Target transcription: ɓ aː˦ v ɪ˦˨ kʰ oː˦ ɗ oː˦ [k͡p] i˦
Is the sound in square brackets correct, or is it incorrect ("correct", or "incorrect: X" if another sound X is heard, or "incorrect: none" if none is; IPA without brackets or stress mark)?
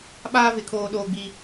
incorrect: ɡ͡b